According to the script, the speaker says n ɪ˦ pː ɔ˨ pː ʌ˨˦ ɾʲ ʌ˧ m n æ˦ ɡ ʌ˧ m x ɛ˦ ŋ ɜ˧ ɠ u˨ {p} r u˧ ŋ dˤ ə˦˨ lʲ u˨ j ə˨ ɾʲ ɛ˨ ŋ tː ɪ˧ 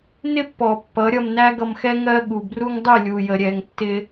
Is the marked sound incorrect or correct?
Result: incorrect: b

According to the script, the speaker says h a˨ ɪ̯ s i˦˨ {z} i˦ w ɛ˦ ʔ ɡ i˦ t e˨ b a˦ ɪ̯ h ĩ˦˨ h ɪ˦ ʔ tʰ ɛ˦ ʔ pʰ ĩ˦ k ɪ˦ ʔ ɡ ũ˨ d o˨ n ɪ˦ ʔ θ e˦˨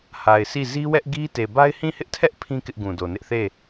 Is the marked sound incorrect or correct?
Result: correct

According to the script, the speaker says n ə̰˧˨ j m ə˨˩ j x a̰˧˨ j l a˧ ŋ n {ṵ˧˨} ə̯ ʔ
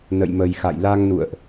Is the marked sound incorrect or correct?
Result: correct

